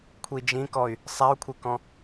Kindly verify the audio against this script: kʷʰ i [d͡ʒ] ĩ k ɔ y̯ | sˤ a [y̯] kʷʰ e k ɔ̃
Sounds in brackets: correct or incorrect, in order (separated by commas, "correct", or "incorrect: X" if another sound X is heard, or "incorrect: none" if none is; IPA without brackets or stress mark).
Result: correct, incorrect: u̯